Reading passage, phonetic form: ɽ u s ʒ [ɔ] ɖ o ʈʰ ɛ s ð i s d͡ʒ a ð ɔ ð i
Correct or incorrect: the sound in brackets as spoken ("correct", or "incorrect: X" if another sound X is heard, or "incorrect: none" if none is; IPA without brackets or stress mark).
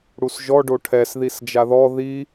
correct